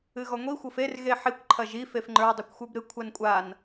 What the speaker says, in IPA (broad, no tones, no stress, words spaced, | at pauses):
ɨɣɔŋʷi xʷɤfer ɣeħikʷ ǃʰɐʒi fefŋ͡ǃə˞ dˤekʷxʷə˞bɾɨ kʷʰankʷʼan